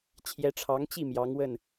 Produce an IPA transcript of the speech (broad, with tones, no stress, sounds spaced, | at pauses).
t͡ɕʰ j ɛ˧˥ ʈ͡ʂʰ ɑ˧˥ ŋ t͡ɕ i˥˩ m j ɑ˧˥ ŋ w ə˥˩ n